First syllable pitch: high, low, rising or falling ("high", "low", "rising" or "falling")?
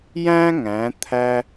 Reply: high